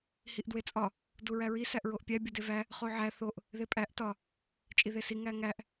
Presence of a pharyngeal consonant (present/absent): present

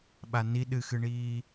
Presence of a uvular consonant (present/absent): absent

